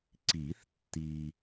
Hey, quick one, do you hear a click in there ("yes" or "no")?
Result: yes